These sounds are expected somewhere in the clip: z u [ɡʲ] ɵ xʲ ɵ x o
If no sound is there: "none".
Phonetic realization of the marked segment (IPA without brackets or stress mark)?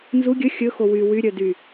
ɡʲ